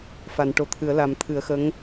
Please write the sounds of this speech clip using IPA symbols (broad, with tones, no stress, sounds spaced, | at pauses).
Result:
f a˨˩˨ n ʈ o˨˩˨ t̪ʰ ɨ˨˩˦ ə̯ l a˨˩˦ m t̪ʰ ɨ˨˩˦ ə̯ x ə˧˥ ŋ